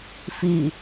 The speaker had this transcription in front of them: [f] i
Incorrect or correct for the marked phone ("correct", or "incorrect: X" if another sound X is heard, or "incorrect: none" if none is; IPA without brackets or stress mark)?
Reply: correct